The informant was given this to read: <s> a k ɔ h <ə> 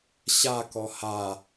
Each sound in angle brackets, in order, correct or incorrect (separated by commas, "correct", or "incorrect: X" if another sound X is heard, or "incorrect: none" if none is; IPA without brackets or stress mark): incorrect: ɕ, incorrect: a